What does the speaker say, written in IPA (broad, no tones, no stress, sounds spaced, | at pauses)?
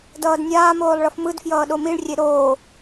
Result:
d ʌː d nʲ aː m oː lˠ ɭ ʌ f m ɯ d f j ʌː ɗ o m i ɭ rʲ e ɾ oː